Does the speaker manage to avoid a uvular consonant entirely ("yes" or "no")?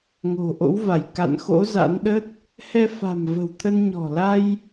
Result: yes